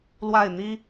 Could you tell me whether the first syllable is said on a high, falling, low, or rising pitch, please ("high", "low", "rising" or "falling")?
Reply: falling